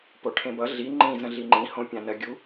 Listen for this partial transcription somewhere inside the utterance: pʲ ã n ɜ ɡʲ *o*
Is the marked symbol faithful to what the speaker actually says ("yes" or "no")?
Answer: no